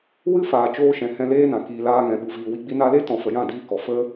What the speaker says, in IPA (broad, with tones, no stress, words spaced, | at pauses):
wɨ˦faː˨ t͡ʃoː˧ʃɛ̃˨ hɛ̃˧leː˦nã˨ kiː˨laː˧ŋɛ̃˨ ɓu˨viː˨wi˧ ɡ͡bi˧na˧le˦tɔ̃˨ fə˨jã˦˨diː˧kɔ˨ fə˦